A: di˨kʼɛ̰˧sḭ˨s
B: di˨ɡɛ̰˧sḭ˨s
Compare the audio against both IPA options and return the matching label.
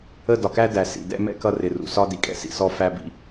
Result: A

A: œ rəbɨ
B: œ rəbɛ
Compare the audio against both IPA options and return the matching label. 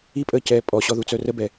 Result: B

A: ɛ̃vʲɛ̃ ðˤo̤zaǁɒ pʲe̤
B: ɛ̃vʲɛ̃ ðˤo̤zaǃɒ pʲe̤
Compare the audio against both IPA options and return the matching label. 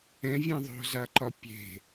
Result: B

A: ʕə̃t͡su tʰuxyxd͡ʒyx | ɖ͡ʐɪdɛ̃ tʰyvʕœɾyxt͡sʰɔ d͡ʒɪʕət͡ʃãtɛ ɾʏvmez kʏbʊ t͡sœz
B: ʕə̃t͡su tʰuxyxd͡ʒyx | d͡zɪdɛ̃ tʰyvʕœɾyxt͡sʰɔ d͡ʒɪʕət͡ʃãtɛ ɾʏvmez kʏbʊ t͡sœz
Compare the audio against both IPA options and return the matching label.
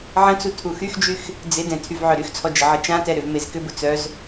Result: B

